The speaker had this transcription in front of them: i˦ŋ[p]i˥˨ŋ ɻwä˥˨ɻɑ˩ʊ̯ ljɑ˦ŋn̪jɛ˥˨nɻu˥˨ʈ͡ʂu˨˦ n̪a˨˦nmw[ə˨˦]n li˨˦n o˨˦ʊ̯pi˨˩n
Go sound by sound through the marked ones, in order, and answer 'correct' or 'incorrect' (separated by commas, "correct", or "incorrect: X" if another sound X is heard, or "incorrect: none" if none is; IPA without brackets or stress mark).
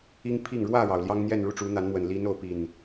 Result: incorrect: pʰ, incorrect: ə˨˩